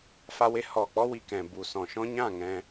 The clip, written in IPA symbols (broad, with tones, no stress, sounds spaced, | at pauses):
f a˧ w e˧ h ɔ˨ k͡p ɔ˦ w i˧ k ɛ̃˨ b u˨ s ɔ̃˨ ʃ ɔ̃˦ ɲ ã˦˨ ŋ ɛ̃˧